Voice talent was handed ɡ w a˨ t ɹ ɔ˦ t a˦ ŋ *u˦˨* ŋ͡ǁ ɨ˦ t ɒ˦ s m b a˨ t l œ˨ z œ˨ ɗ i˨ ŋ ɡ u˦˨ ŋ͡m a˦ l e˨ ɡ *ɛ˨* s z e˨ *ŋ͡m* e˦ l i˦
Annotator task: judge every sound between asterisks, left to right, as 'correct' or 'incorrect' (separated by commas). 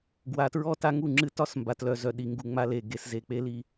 correct, incorrect, incorrect